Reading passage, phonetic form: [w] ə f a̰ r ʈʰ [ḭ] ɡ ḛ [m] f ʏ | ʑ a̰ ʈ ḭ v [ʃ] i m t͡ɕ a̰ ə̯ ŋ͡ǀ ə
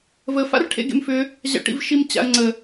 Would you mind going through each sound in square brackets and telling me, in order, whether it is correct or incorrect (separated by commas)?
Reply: incorrect, incorrect, correct, correct